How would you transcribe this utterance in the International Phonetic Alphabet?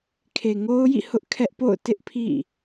kʰ e˨ ŋ o˦ ʊ̯ j ḭ˦˨ h ʊ˦ ʔ kʰ ɛ˦ ʔ p o̰˦˨ ʊ̯ t ɪ˦ ʔ pʰ ḭ˦˨

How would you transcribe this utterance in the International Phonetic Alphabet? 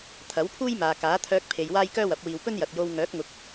t̪ʰ ɐ˨˥ w pʰ uː˥ j m aː˨ k aː˨˥ t̪ʰ œː˧ k̚ pʰ e˨ j w aː˥ j k œː˥ w ɐ˨˥ p̚ w iː˧ w p ɵ˥ n j ɐ˨ t̚ j o˧ w ŋ œː˨˥ k̚ ŋ ʊ˨˥ k̚

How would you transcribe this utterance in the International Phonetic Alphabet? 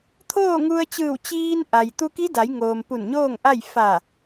t̪ʰ oː˥˨ ŋ u˧ ə̯ t͡ɕ ɯː˧˩ w t͡ɕ iː˧ n ʔ a˩ j t̪ u˧ k i˧˥ d a˩˧ j ŋ oː˩ m p u˧˩ n ɲ oː˥˨ ŋ ʔ a˥˨ j f a˧˩

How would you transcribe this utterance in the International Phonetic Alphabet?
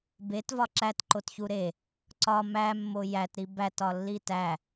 b e t v ɒ ǁ æ t ǃ o t ç u ɾ e | ǀ ɒ m æ mː o j æ t ɾ i b æ t ɒ lː i t æ

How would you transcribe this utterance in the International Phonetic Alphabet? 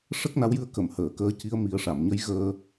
ʂ ə˦˥ k̚ n a˧˥ w j ɨ˧˥ ə̯ k ə˨˩˨ m h əː˨˩˨ k əː˧˥ c i˧˥ ə̯ m i˨˩˦ ə̯ ʂ a˨˩˨ m ɲ ə˧˥ j ɣ əː˧

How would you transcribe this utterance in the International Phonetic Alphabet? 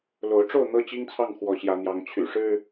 l o˨˦ ʊ̯ ʈ͡ʂ o˥˨ ʊ̯ n̪ ɤ˦ t͡ɕ i˦ ŋ t͡sʰ ɑ˥˨ ŋ x w ɔ˨˦ ɕ j ä˨˦ n̪ j ɑ˨˦ ŋ t͡ɕʰ y̰˨˩ ʂ ɻ̩˦

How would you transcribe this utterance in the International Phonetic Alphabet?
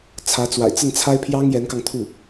t͡sʰ ä˧˥ t͡s w a̰˨˩ ɪ̯ t͡s ə˥˩ n t͡sʰ a˥ ɪ̯ pʰ j ɑ˥ ŋ j ɛ˧˥ n k ɑ˧ ŋ t̪ʰ u˥˩

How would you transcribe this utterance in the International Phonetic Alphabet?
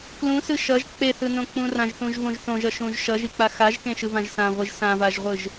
k l ũ s ɯ ʃ ʌ ʒ k͡p e θ ɯ n õ k͡p ũ r ã ʒ θ ũ ʒ v õ ʒ θ õ ʒ ʌ ʃ ũ ʒ ʃ ʌ ʒ i k͡p a x a ʒ k ẽ ʃ ɯ v ã ʒ s ã ʁʷ i ʒ s ã v a ʒ ʁʷ ɯ ʒ

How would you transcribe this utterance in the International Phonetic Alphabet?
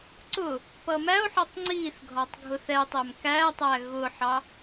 ǀ ʊ | p ʌ m æ o̯ ħ ʌ tˤ ŋ͡ǀ i θ ɡʱ ɒ tˤ ɡʱ ʊ θ ɛ tˤ ɛ m k æ tˤ æ ɣ ʊ ħ ɑ

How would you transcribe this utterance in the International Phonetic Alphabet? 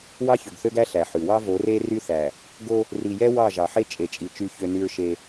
w ɑ˦ ç ø˨ ɡ θ ø˦ ɡ æ˦ ɬ æ˨ ħ ʉ˨ w ɑ˦ v o˨˦ r e˦ r y˦ θ æ˨ | ɡ o˦ | r i˨ j ɛ˦ w ɑ˦˨ ʒ ɑ˨ ħ e˦ t͡ʃʼ e˨ t͡ʃʼ i˨ t͡ʃ y˦ ç ø˦ n y˦ ɹ ʃ e˦

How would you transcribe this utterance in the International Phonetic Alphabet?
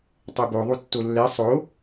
tˤ ɛ b o ðˤ u tː o lː ɛ sˤ o

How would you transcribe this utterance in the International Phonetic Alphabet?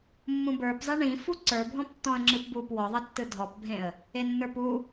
mː ũ b ə˞ p zˤ i ɳ ĩ f u ǀ ə˞ bʱ ɔ̃ p tː ɔ̃ ə̯ ŋ͡ǁ ɯ p b u p w ɔ ðˤ ʌ tː ɯ dʱ ɔ p bʱ ẽ ə̯ | e nː ə˞ p u

